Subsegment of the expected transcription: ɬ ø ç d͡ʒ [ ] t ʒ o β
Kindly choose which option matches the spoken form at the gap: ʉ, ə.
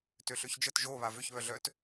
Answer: ə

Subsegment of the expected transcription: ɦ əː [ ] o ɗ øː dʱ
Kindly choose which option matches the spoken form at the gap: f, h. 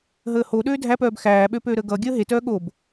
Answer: h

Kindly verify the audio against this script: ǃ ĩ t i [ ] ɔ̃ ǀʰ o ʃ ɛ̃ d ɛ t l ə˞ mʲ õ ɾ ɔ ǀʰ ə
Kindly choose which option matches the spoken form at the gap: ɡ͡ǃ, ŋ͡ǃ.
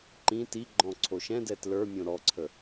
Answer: ɡ͡ǃ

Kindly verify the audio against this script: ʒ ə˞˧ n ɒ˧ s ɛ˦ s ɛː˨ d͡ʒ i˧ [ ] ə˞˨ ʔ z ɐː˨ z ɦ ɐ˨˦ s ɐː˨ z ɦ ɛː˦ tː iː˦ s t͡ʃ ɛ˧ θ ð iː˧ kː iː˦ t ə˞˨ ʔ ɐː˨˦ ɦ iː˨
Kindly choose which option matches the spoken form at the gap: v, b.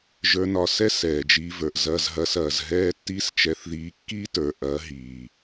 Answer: v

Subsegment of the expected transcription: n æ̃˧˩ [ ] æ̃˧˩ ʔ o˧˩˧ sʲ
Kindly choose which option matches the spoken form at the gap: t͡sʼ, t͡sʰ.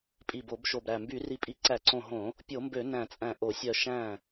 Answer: t͡sʼ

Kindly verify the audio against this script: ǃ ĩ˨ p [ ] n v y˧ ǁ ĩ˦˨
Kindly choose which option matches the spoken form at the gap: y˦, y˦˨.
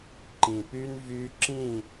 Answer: y˦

